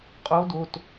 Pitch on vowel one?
rising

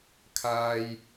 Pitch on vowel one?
high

